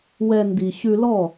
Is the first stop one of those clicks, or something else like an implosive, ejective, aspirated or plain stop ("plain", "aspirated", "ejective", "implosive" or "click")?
plain